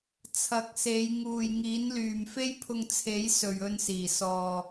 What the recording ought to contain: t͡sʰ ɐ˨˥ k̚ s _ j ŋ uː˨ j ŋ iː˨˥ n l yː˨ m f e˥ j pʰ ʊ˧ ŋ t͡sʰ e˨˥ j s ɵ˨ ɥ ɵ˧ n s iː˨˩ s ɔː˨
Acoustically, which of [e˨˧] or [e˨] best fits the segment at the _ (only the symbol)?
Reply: e˨˧